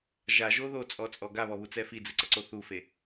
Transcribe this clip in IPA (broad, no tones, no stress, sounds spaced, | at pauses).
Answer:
ʒ a ʒ o ð o t͡sʼ ɔ t͡sʼ ɔ ɡ a β ɔ β u t͡s ɛ f i d͡z ɨ ǀ ɐ ǀ o θ u f e